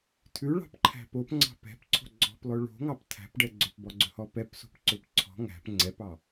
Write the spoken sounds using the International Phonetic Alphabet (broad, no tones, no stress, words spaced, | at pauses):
tʰʉɭɑ̤pǃʰæ̤ popŋ͡ǀɑ̤ pɛ̤pǀʰo̤ ɡ͡ǀɔ̤plˠɵ ɭo̤ŋɑp tʰæ̤pɖɛ ɡ͡ǀɵpbɔɡ͡ǀɵhɔ pɛpso̤pǀɵp ǀʰɔ̤ ŋæ̤p ŋ͡ǀɛpɑ